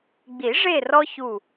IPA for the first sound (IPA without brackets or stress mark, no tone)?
ɡ͡b